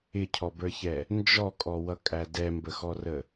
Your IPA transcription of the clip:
ɪ cʰ ɔ b ə˞ ç ɛ | n d͡ʒ ɔ kʼ ɔ w ʌ kʼ æ d ɛ m b ə x ɔ r ə

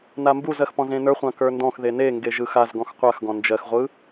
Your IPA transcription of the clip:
n a m b u z ɜ x p ɔ̃ z ẽ n ə˞ χʷ ã k ə˞ n d ɔ̃ x ð e n e ŋ ɡ e ʒ ɯ x a z ɡ ɔ̃ x qʷ a x ɡ ɔ̃ n d͡ʒ ɜ x ʁʷ ɯ

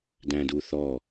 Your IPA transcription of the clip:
d æ̃ d u θ ɔ

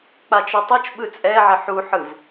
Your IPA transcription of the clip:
k͡p a t͡ʃ o tˤ o t͡ʃ ɓ ɯ t͡sʼ ɛ ʕ e ħ u ħ ɯ v

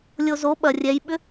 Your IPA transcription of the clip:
lʲ o z o ɓ ɐ rʲ ɛ j ɓ ʏ

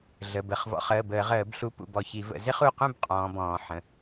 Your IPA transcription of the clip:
ɮ ə˩˧˩ b ə˩˧˩ χ v ɔ̰˨˦ χ əː˩˧˩ b əː˧˩˧ ʁ əː˧˩˧ b ɬ u˨˦ p ṵ˧˩ b ɔ˧˩ ç i˧˩˧ v ə̰˧˩˧ z ɪ˥ χ u˩˧˩ q ũ˥˨ b qʼ ɔ̃ː˨˦ b ɔ̃ː˧˩˧ ħ ə̃˩˧˩

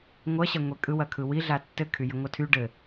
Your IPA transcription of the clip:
ŋʷ ɐ ɕ ɐ ŋʷ e kʼ ɯ w ɐ kʰ ɯ w i ɮ a tː ɘ kʰ y j ɘ ŋʷ ɐ tʰ y ɖ ɘ

